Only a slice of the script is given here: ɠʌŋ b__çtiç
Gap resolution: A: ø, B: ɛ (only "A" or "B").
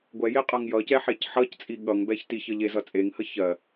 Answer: B